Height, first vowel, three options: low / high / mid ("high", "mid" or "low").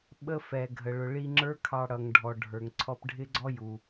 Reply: mid